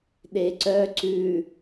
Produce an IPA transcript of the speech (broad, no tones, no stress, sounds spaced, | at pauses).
ɗ e ǀ œ ǀ ʉ